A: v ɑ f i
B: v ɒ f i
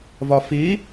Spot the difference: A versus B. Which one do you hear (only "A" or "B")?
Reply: B